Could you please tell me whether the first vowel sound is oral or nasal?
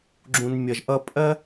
nasal